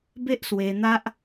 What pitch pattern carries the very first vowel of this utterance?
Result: high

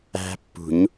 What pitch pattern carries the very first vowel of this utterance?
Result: high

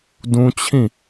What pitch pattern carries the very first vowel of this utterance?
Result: high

